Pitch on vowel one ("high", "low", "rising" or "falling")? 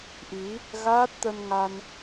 rising